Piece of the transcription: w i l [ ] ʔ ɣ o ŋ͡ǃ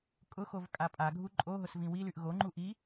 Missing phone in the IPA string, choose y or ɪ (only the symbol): y